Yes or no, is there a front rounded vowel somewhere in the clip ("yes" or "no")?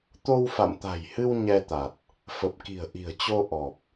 no